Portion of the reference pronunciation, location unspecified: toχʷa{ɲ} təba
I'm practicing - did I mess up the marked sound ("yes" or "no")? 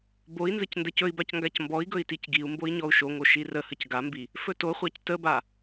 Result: yes